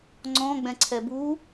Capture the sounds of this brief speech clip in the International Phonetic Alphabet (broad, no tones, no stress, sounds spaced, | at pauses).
ŋ͡ǀ ɔ̃ ɡ͡b ɛ̃ ǀʰ ɛ b u